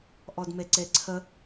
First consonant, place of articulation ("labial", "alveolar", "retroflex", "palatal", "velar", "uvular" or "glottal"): glottal